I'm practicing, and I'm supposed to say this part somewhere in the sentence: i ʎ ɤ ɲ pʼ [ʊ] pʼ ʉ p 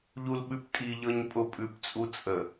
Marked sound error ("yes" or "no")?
no